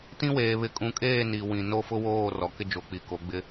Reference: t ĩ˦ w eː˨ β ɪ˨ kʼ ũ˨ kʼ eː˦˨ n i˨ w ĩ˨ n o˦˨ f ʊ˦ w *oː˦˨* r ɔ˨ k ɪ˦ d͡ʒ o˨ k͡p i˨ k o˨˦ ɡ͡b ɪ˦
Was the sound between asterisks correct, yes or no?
yes